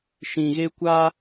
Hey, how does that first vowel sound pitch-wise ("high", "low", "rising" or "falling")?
low